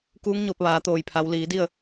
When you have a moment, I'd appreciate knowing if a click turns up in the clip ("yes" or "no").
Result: no